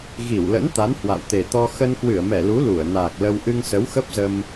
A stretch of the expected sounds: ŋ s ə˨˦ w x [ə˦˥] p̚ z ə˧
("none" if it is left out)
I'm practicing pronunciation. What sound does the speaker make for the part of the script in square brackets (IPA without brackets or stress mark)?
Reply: ə˦˥